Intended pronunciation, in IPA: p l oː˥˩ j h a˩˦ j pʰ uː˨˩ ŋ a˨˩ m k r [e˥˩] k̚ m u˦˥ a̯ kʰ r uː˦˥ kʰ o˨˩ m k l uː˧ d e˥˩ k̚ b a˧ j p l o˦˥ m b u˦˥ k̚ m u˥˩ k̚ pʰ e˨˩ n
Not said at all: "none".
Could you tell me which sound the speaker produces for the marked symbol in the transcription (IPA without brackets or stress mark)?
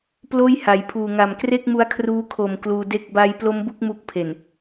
e˥˩